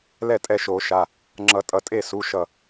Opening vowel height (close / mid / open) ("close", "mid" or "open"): mid